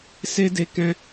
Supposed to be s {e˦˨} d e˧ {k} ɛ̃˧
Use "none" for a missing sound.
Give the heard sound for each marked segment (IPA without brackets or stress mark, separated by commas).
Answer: e˦, k